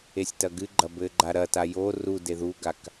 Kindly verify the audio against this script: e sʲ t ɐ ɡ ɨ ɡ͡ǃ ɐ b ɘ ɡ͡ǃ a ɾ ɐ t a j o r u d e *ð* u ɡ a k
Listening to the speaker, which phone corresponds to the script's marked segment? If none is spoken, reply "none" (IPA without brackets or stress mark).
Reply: ð